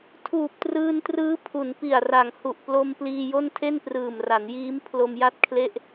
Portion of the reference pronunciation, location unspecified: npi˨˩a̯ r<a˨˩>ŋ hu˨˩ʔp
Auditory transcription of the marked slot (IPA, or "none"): a˨˩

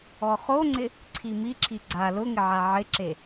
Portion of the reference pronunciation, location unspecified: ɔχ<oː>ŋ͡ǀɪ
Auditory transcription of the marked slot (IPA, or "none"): o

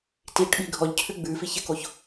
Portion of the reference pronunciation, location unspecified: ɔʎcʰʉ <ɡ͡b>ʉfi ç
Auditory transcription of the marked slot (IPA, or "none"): ɡ͡b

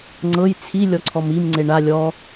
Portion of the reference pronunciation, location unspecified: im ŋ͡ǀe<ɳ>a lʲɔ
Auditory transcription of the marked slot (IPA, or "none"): ɳ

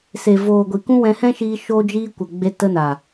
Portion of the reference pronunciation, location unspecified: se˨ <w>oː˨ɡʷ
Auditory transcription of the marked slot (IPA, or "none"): v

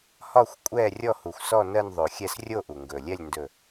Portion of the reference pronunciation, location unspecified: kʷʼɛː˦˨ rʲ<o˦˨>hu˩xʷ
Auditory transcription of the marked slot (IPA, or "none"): ɔ˦˨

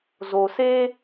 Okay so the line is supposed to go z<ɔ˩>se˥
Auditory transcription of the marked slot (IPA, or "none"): o˩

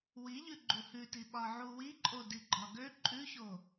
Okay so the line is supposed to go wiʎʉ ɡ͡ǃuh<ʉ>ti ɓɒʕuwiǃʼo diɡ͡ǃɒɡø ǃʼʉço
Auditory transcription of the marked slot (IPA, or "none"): ʉ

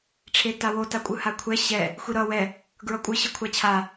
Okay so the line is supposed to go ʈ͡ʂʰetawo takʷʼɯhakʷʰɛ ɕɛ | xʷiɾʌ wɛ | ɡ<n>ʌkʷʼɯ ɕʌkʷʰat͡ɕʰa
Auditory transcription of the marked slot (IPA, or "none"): ɹ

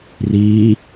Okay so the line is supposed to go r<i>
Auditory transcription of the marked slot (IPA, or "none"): i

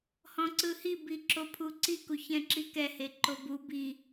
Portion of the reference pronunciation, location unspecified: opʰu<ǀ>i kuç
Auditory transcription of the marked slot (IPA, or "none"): ǀ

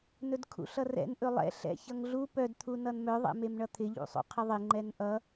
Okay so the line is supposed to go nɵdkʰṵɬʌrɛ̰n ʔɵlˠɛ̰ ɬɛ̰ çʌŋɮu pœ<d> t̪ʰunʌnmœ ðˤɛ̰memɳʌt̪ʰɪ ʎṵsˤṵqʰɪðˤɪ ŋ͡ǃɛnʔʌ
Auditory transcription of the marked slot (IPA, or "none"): d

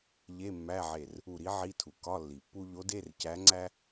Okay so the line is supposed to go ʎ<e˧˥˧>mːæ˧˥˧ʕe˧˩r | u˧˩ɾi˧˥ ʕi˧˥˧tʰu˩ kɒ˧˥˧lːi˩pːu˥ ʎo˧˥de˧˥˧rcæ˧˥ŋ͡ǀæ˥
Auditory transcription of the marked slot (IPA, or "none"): e˧˥˧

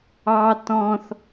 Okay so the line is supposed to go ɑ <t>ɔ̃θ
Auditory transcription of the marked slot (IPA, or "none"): t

